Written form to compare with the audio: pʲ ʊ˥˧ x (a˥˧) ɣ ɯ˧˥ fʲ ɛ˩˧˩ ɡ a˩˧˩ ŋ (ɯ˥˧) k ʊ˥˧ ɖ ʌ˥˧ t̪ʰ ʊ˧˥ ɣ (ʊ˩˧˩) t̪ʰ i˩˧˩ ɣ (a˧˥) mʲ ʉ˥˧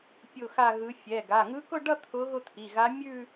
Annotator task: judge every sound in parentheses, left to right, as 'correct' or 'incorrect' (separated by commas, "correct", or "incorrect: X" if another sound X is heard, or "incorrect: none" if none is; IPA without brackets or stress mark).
correct, incorrect: ɯ˧˥, incorrect: ʊ˥˧, correct